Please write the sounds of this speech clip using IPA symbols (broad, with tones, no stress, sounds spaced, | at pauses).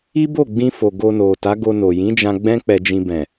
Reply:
i˦ b o˦˨ ɡ͡b ĩ˧ f o˨ ɡ o˧ n o˨ t a˨˦ ɡ o˧ n o˨ j ĩ˨˦ d͡ʒ ã˧ ɡ͡b ɛ̃˦ k͡p ɛ˧ d͡ʒ ĩ˧ b ɛ̃˨